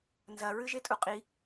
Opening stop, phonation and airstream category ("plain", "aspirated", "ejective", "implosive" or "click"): ejective